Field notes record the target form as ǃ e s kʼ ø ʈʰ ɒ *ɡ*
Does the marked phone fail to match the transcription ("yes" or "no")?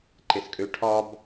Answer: yes